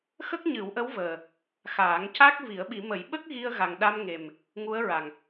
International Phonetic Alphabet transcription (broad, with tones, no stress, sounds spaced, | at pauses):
x ə˦˥ k̚ ɲ ɨ˨˩˦ w ʔ ə˧˥ w v əː˨˩ | x aː˨˩˦ ŋ c a˦˥ k̚ v i˨˩˦ ə̯ ɓ i˨˩˦ m ə˨˩˦ j ɓ ə˦˥ k̚ ɣ i˧ ə̯ ɣ a˨˩ ŋ ɗ a˧ m ŋ e˨˩ m | ŋ u˧˥ ə̯ ɹ a˨˩ ŋ